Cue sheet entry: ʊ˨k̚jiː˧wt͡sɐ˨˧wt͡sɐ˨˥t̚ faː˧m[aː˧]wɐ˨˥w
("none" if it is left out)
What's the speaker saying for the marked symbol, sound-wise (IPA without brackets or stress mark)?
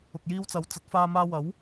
aː˧